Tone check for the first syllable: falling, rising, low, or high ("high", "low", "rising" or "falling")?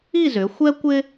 falling